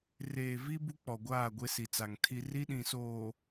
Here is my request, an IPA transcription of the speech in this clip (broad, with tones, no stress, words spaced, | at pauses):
reː˨vi˦ bu˦k͡pɔ˨ɡʷaː˦˨ ɡʷe˦si˨t͡sa˨ŋ tʰi˦ ri˦ɗĩ˨soː˨